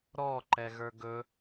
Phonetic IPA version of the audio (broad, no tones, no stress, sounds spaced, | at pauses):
ɾ ɔ ǃ ɛ ɣ ə˞ ɡ ɵ